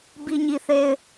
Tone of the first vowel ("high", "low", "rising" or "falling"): high